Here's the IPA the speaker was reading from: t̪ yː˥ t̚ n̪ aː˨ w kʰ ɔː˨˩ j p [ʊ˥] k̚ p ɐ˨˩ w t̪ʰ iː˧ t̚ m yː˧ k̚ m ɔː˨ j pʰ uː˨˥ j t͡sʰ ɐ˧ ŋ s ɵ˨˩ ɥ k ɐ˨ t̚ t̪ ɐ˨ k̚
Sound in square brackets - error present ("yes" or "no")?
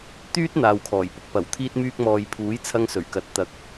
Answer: no